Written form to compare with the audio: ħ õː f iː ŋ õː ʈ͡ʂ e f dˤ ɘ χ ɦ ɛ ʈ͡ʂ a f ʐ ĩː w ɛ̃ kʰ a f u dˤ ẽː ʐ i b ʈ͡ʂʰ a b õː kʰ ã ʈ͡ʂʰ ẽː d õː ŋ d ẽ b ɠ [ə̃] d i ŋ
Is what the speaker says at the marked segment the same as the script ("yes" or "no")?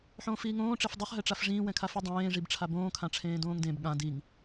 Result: no